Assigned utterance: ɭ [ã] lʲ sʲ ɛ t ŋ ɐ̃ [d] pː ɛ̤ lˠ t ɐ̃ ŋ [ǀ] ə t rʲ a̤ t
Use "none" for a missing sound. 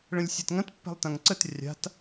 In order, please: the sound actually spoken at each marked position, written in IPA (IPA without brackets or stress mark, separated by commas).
ə̃, t, ǀ